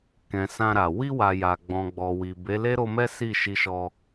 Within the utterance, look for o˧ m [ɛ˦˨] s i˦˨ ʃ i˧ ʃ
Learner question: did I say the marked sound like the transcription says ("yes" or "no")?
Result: no